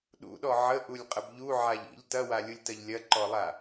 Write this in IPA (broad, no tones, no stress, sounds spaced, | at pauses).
ɗ ṵ ɗ ɔ ʕ ə ʔ u lʲ qʼ ə b ʎ u ʕ a ʎ ḭ ʎ t ɐ w a lʲ u lʲ t ɐ ʎ lʲ ɐ ǃ ɔ lˠ a